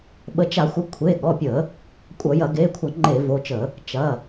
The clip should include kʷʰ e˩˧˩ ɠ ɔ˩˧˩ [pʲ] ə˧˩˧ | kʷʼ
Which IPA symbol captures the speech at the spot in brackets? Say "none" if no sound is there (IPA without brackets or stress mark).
pʲ